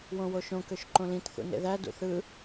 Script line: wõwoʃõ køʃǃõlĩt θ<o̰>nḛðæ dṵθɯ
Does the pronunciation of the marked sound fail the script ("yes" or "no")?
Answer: yes